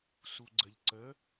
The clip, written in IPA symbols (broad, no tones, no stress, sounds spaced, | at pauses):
s u ɡ͡ǀ ə ʎ ǀ ə